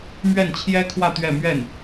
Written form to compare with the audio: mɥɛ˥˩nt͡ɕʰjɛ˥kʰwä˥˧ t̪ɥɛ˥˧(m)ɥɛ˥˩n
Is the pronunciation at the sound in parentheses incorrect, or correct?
correct